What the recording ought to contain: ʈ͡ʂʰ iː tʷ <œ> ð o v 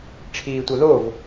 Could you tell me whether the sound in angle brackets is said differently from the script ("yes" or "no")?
no